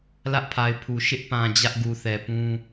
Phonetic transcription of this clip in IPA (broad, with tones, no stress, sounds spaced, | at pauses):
l ä˦ ʔ pʰ a˨ ɪ̯ pʰ u˨ ʃ ɪ˦ ʔ p ã˨ d͡ʑ ä˦ ʔ ɡ u˨ θ ɛ˨ p ũ˦